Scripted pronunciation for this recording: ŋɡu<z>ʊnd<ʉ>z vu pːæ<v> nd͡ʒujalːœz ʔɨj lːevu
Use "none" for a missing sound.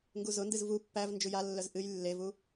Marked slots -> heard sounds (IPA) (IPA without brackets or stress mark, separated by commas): z, ɨ, v